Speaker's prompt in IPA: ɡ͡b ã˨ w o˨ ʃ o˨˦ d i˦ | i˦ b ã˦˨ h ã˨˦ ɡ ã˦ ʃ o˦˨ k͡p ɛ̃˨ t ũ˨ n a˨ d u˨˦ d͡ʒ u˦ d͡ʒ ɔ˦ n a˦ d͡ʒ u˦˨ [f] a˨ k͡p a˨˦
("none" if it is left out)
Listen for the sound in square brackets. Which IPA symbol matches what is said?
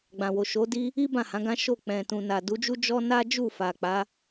f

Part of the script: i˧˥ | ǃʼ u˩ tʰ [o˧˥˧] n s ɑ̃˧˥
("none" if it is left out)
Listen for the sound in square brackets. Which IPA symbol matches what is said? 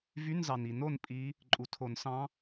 o˨˩˦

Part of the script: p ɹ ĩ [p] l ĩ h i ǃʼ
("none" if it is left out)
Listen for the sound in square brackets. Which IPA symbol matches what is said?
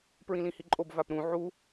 none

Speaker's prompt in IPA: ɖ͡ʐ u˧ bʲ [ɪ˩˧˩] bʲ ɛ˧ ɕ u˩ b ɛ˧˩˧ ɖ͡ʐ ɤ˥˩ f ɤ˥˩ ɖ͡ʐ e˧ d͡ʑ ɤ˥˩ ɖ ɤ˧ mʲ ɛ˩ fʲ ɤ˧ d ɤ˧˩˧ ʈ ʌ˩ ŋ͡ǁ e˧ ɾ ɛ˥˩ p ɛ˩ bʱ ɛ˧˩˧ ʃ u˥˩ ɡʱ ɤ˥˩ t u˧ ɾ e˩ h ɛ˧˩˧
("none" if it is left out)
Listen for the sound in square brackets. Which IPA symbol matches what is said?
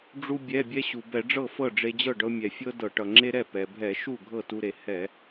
ɛ˩˧˩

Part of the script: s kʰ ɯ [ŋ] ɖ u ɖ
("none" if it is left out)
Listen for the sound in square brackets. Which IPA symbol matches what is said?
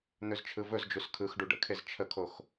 x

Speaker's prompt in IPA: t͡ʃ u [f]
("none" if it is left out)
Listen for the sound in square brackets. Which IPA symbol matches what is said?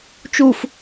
f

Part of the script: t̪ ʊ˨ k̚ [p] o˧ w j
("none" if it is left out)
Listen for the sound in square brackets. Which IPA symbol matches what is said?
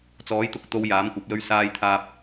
t̪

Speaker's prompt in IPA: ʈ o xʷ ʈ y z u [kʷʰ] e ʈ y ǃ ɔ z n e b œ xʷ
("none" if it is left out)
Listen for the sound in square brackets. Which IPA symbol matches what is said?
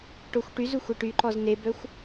xʷ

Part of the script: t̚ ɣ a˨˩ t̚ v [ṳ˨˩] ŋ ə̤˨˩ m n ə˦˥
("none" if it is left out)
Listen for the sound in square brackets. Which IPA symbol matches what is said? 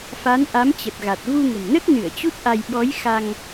u˧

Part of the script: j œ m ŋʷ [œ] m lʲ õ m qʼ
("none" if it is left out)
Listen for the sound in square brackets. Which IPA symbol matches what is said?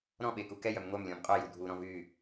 œ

